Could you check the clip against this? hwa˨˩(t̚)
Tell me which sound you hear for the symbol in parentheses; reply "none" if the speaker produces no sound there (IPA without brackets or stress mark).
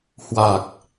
k̚